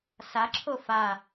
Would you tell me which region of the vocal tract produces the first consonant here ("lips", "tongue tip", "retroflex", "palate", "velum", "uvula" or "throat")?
tongue tip